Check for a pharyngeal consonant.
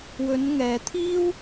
absent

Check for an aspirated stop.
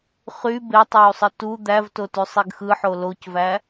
absent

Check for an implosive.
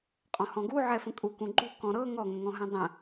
absent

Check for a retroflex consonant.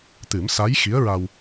absent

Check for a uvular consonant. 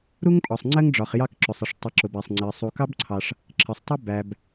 present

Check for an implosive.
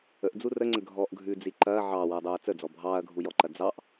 absent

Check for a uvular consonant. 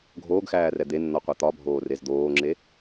present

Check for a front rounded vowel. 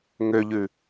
present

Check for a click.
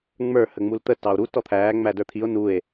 absent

